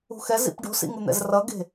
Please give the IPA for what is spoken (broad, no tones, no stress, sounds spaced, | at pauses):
ṳ x ɛ z ḭ p ɖ o̤ s ḭ ŋ u n̪ ɛ̰ z r ʌ ɡ e̤